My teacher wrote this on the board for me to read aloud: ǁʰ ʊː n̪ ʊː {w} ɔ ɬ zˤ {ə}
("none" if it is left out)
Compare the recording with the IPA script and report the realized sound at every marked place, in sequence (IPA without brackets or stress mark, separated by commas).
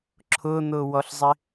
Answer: w, ɪ